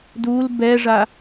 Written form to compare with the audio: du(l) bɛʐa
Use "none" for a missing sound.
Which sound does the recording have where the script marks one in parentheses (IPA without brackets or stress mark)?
l